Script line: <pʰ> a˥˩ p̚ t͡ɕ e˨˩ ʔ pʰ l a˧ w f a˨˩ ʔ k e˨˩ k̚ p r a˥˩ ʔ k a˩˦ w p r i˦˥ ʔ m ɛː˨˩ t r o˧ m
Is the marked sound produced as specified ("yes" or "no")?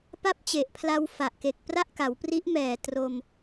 no